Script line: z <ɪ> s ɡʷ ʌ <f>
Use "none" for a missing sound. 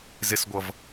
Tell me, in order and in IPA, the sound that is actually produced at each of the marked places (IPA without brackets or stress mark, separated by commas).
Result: ɪ, v